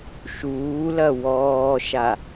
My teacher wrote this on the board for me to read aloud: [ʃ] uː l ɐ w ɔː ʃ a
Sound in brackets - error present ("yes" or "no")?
no